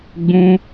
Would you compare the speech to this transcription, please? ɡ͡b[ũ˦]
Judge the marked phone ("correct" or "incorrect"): correct